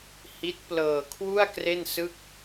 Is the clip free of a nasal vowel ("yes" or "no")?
yes